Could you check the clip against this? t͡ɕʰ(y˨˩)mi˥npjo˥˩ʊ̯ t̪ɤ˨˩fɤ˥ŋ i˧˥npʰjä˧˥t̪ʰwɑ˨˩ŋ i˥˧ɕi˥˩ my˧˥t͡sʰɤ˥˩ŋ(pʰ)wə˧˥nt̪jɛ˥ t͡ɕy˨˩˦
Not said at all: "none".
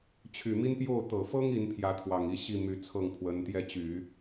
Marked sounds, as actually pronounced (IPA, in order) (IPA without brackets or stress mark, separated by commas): y˨˩, pʰ